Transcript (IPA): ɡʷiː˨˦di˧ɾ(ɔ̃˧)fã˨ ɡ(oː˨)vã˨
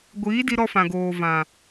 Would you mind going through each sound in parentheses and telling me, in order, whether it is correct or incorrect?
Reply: incorrect, correct

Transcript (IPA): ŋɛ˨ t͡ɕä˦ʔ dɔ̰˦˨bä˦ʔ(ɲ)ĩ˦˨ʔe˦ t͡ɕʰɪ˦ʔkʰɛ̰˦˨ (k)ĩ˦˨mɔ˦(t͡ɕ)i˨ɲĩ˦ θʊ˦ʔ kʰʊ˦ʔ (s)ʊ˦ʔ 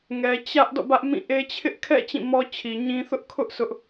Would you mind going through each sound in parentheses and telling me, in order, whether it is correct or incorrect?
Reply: incorrect, incorrect, incorrect, correct

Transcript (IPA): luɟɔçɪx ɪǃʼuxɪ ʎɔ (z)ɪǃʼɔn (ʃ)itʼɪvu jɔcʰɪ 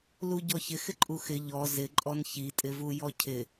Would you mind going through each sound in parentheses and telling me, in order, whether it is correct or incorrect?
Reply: correct, incorrect

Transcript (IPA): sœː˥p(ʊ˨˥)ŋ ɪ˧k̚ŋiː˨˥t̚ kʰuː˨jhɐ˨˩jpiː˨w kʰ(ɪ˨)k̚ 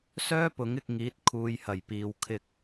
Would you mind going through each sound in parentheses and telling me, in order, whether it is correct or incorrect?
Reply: correct, incorrect

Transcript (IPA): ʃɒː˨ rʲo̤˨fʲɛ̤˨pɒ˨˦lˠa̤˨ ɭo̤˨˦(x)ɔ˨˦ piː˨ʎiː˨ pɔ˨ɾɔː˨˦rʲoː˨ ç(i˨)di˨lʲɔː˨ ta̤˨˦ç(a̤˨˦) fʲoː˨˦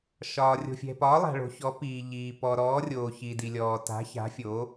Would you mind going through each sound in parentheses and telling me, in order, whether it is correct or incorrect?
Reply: incorrect, correct, correct

